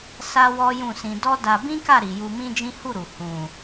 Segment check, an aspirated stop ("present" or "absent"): absent